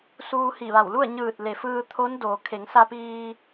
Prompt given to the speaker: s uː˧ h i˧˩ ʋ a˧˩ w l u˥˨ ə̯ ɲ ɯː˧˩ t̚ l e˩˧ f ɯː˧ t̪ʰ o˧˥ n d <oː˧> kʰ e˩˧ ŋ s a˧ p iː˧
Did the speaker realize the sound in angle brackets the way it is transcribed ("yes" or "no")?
no